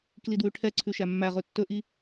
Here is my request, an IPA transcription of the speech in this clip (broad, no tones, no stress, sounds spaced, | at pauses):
k l i d w ʉ ʈʰ ɛ ǀʰ ʉ ʃ æ mː æ ʁ ɵ tː ɵ ʔ i